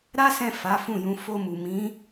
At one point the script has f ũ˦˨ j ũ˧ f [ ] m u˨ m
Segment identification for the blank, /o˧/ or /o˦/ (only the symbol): o˧